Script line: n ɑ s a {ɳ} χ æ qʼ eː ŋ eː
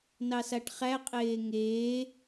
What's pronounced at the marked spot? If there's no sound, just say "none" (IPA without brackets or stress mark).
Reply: ʈ